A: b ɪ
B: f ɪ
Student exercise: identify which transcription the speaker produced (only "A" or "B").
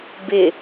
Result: A